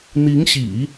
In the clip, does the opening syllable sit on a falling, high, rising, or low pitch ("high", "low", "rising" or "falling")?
rising